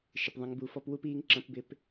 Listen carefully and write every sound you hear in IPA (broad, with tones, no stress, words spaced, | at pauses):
ʃɪ˩pðˤə̃˩˧ŋ bu˩˧fɔ˧pwu˧˥p iː˥ŋǁə̃˧˥pbɪ˧p